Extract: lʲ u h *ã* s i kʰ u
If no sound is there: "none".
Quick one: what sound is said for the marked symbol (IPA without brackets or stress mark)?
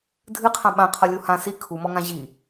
ã